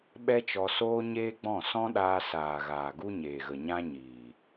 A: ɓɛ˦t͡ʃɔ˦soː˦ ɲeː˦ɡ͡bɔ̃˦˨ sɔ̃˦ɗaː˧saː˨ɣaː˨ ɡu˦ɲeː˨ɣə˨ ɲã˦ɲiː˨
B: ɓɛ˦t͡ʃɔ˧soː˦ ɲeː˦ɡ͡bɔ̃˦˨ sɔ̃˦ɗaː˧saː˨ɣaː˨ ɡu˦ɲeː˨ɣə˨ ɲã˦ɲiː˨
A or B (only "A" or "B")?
B